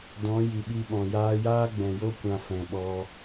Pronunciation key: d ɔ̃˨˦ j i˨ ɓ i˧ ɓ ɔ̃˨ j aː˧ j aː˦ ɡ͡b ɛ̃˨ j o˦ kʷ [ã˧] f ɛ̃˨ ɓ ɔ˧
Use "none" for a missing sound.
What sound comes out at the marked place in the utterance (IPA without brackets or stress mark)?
ã˧